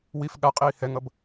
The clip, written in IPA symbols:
w i f ɠ a qʼ iː h ɛ ŋ ʌ b

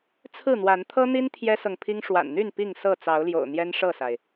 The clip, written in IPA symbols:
t͡sʰ ɹ̩˥˨ n̪ w a˨˦ n t̪ʰ ɤ˦ n̪ i˦ n t̪ʰ j ɛ˦ s ɤ˨ ŋ pʰ i˦ ŋ ʂ w a̰˨˩ n n̪ y˥˨ n p i˥˨ ŋ s ɤ˥˨ t͡s ɑ˨˦ ʊ̯ l j o̰˨˩ ʊ̯ n̪ j ɛ˦ n ʂ ɤ˥˨ s a˩ ɪ̯

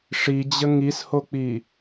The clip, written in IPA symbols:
ʂ i d͡ʑ ə ŋ i s h o k͡p i

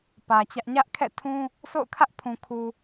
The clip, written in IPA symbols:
p ä˨ t͡ɕ ä˦ ʔ ɲ ä˦ ʔ kʰ ɛ̰˦˨ tʰ ũ˦ | sʰ o̰˦˨ ʊ̯ kʰ ä˦ ʔ pʰ ũ˨ kʰ u˨

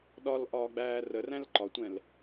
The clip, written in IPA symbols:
ɗ ɒ l ʔ ɒː ɡ͡b æː r ə r æ̃ l ǃ ɒ tʷ ɛ̃ l

